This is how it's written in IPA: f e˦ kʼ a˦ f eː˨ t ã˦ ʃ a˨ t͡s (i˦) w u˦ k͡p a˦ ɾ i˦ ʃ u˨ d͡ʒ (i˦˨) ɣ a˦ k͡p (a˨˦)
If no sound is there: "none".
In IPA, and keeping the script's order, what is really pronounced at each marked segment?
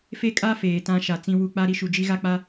ĩ˦, i˦, a˦

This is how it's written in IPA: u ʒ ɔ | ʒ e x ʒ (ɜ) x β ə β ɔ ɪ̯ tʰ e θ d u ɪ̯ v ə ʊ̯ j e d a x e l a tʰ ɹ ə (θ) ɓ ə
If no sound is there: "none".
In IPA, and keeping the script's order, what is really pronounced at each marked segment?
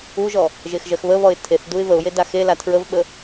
ɜ, v

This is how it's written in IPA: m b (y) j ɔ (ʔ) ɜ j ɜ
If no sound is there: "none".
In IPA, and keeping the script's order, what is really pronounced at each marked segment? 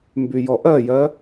y, ʔ

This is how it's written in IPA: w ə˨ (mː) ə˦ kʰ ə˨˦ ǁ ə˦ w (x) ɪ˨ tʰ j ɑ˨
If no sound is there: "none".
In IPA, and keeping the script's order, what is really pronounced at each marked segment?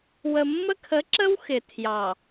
mː, x

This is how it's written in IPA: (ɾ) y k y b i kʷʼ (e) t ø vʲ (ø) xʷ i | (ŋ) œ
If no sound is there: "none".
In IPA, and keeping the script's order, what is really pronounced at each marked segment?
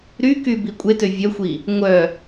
ɾ, e, œ, ŋʷ

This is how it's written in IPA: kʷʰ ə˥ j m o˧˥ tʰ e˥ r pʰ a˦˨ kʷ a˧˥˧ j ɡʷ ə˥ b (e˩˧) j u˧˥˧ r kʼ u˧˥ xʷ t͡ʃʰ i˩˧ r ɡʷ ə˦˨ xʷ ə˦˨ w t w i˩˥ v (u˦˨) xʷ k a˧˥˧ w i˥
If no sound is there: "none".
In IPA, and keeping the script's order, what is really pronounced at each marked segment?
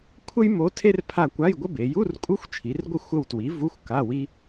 e˩˧, u˧˥˧

